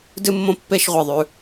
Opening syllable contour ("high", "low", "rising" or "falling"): high